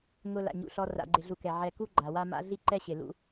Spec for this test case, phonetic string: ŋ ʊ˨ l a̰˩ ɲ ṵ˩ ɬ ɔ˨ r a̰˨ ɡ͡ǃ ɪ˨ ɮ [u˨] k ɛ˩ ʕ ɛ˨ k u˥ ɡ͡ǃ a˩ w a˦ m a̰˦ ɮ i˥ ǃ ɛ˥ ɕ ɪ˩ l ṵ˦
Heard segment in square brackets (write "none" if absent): u˨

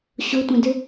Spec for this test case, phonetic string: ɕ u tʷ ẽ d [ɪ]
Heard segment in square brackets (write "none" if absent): ɨ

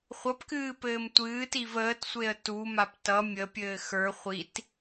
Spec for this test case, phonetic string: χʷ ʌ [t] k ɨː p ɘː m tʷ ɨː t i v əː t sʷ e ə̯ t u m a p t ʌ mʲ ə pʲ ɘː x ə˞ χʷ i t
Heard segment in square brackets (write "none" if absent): p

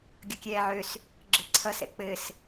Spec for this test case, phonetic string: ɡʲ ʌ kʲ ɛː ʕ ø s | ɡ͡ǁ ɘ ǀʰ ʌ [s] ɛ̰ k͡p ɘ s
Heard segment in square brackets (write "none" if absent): s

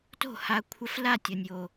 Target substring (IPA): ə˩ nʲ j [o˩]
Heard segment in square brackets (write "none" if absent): o˩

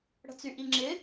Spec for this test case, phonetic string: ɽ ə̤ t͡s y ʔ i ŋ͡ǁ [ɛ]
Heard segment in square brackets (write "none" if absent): ɪ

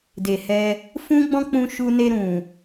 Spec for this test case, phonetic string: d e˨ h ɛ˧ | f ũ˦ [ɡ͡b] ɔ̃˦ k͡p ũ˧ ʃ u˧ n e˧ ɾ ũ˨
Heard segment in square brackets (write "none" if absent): ɡ͡b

